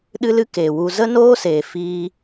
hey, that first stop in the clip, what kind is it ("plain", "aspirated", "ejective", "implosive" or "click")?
implosive